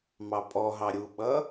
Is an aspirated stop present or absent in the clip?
absent